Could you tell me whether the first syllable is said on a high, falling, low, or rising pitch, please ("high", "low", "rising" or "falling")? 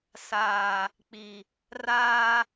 low